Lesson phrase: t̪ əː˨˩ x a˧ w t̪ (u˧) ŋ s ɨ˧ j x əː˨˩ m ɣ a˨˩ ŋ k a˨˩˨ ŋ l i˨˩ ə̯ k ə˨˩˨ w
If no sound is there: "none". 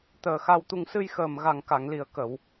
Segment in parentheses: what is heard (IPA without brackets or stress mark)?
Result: u˧